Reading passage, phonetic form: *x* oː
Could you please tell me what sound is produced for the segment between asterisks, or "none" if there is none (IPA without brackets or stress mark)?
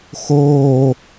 x